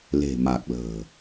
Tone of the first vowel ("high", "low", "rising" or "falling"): low